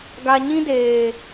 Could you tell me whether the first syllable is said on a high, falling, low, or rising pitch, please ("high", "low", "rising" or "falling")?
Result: low